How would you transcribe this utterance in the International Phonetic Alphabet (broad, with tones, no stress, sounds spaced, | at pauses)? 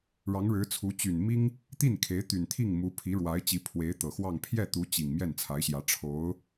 ɻ ɑ˧˥ ŋ ɻ ɻ̩˧˥ t͡sʰ u˧˥ t͡ɕ y˨˩ n m i˥ ŋ | t̪ i˥˩ n kʰ e˧˥ ɪ̯ t̪ y˨˩ n t̪ʰ i˥˩ ŋ m u˧˥ pʰ i˧˥ ɻ w a˧˥ ɪ̯ t͡ɕ i˧˥ pʰ w e˧˥ ɪ̯ t̪ ɤ˨˩ x w ɑ˥˧ ŋ pʰ j ɛ˥˩ t̪ u˧˥ t͡ɕ i˨˩ ŋ m j ɛ˥˩ n t͡sʰ a˧˥ ɪ̯ ɕ j ä˧˥ ʈ͡ʂʰ o˧˥ ʊ̯